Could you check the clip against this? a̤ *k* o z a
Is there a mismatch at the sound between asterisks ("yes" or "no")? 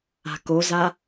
no